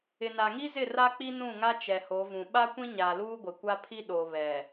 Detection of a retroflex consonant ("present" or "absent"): absent